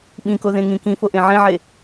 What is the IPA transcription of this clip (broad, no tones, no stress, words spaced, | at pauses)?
ɓĩkoðẽŋĩ kĩfoʔẽ ʕẽʕe